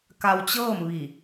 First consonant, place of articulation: velar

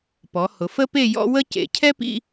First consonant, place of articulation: labial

